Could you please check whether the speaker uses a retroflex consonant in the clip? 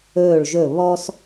yes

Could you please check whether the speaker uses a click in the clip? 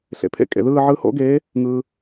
no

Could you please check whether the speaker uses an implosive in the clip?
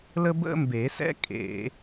no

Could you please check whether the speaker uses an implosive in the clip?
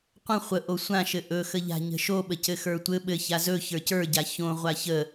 yes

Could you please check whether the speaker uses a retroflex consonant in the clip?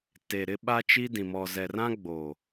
no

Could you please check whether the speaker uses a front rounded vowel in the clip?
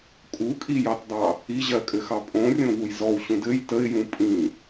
no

